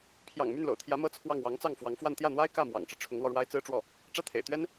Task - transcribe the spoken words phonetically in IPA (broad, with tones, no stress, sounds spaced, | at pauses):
pʰ j ɑ̰˨˩ ŋ m y˥˩ n l o̰˨˩ ʊ̯ t̪ʰ j ä˧˥ m ɤ˥˧ t͡sʰ w ɑ˥˩ ŋ w ɑ˧˥ ŋ t͡s ɑ˥˩ ŋ f w ɑ˧˥ ŋ f w a˥˧ n t̪ j ä˥˩ n̪ w a˥ ɪ̯ k ä˥˩ m w ɑ̰˨˩ ŋ ʈ͡ʂ ɻ̩˦ ʈ͡ʂʰ ʊ˧˥ ŋ l w ɔ˧ ɻ w a˥ ɪ̯ t͡s ɹ̩˥ ʈ͡ʂ w ɔ˥˩ | ʈ͡ʂ ä˥˩ t̪ʰ ḛ˨˩ ɪ̯ t̪ ɥ ɛ˥ n